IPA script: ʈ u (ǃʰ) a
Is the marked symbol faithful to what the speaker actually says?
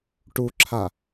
no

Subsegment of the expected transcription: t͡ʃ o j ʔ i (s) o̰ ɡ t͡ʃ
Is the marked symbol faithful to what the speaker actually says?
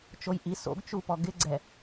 yes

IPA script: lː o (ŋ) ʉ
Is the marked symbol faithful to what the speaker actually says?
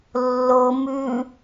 no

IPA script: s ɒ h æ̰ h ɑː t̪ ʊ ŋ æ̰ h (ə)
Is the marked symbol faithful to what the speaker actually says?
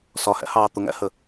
yes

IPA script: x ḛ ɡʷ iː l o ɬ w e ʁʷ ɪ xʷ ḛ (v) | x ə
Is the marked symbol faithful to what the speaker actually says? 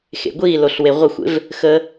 yes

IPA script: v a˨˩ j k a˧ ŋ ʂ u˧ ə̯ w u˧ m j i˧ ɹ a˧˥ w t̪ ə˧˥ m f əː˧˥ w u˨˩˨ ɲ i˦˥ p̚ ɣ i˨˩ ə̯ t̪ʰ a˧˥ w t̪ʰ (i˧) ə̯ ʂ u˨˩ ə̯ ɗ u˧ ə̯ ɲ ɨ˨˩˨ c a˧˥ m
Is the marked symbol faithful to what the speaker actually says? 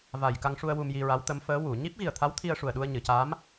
yes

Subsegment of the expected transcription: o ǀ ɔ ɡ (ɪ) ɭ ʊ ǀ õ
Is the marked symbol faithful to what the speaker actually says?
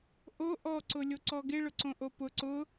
yes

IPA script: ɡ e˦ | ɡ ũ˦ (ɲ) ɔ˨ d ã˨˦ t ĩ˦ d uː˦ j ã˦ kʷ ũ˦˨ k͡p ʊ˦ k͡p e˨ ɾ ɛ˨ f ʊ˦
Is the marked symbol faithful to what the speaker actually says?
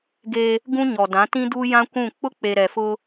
yes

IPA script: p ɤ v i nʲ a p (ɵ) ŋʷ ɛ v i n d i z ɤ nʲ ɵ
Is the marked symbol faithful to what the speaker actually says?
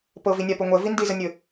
yes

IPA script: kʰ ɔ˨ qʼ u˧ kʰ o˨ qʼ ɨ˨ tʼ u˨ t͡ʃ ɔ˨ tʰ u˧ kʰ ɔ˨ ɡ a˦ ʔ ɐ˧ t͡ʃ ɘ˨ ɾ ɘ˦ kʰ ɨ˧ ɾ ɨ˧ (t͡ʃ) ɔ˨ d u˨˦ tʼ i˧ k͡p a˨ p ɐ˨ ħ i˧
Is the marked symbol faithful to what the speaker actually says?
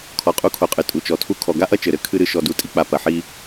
no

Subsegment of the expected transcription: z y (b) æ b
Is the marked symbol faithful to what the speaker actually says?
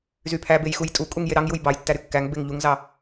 no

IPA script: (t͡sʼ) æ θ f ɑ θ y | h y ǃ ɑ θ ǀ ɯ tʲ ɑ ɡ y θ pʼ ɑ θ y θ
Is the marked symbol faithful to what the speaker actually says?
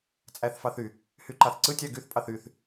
yes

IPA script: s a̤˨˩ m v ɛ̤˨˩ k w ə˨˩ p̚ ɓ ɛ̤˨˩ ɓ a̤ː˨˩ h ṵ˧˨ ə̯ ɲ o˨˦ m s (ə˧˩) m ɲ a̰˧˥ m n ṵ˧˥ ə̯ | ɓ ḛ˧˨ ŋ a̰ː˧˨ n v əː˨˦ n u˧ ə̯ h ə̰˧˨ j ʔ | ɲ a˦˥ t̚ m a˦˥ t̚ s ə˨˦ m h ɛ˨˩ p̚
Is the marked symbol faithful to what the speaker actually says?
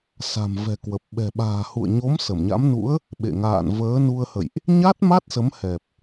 yes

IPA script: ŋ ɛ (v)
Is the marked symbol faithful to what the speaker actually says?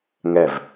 yes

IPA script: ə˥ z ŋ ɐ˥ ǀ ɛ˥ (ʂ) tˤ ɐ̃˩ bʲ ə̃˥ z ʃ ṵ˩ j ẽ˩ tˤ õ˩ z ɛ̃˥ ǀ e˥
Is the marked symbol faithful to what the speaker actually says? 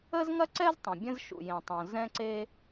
no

